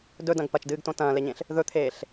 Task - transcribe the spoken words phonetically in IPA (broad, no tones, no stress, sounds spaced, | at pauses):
d ɵ d ɐ̃ ɡ p ɐ t͡ʃ d ɨː ɡ t õ t ɐ̃ː l e ɲ ẽ ɬ | ð ɵ t̪ʰ eː ɬ